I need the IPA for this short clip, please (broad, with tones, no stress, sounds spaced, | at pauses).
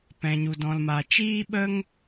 p ɛ̃˨ ɲ u˧ d ɔ̃˧ l m a˧ t͡ʃ iː˦ ɓ ə˦ ŋ